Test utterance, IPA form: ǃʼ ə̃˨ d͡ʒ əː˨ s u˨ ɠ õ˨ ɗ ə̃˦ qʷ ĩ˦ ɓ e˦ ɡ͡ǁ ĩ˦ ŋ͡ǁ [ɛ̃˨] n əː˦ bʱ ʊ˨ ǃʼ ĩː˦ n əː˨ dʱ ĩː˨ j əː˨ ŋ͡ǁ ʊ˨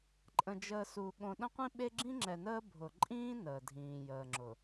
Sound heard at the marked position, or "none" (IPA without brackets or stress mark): ɛ˨